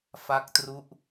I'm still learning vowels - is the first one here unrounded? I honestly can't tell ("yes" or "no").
yes